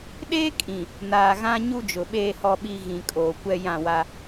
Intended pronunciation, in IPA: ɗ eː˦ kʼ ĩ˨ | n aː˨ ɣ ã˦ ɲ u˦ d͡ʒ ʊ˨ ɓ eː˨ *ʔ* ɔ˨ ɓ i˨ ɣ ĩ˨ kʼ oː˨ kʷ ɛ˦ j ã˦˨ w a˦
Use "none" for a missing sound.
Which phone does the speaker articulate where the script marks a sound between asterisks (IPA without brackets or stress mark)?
h